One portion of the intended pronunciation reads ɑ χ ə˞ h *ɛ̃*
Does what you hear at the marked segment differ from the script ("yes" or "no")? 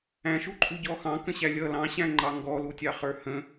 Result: yes